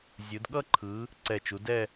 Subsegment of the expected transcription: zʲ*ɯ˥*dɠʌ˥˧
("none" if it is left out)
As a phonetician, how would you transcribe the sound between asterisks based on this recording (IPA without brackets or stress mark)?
ɯ˩˧